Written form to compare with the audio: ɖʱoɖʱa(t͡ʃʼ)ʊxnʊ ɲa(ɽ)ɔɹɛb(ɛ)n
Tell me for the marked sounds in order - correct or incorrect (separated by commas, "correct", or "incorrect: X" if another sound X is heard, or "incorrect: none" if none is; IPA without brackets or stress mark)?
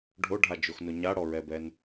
incorrect: d͡ʒ, correct, correct